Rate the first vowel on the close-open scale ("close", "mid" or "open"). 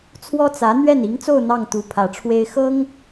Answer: mid